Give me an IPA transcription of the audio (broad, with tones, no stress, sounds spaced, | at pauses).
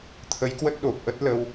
t̪ʰ ə˨˦ j k w ə˦˥ t̚ ɗ o˨˩ p̚ ʔ ə˦˥ t̚ l ə˧ w